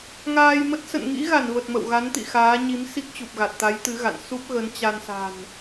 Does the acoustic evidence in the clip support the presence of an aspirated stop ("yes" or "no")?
no